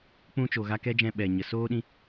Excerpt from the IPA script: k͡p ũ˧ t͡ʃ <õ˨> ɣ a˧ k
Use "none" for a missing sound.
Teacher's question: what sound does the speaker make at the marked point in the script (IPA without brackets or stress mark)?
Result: o˨